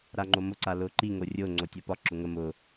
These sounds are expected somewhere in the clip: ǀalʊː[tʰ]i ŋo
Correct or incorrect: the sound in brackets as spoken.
incorrect: ǃ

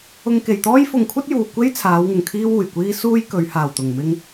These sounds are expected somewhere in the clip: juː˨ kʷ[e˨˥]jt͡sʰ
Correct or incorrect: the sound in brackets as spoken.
incorrect: e˥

